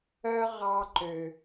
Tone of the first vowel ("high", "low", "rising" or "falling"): high